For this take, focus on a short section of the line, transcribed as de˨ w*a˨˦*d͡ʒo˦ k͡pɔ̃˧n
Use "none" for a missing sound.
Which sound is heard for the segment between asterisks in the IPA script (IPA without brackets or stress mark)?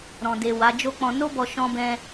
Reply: a˨˦